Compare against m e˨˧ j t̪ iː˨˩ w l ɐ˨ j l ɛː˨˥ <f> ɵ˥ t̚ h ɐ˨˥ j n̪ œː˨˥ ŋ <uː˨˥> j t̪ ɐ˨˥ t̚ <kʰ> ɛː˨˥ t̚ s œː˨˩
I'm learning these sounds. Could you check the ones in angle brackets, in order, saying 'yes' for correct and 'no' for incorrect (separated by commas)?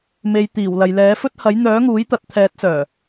yes, yes, no